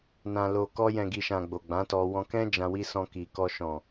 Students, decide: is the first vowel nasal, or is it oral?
nasal